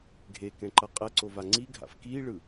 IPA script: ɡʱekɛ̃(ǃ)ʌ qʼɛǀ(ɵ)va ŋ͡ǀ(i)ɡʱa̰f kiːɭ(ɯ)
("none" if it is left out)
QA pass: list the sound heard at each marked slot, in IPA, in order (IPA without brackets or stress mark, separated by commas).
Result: ǃ, o, i, ɯ